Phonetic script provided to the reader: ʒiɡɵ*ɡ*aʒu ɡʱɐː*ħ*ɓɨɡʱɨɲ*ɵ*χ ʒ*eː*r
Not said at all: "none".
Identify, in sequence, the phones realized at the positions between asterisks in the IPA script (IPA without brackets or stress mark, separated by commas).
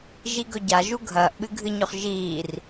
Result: ɟ, ʔ, ɵ, iː